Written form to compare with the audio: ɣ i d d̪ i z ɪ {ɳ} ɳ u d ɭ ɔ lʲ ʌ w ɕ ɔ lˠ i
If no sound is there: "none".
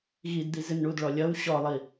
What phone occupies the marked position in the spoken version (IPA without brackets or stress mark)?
n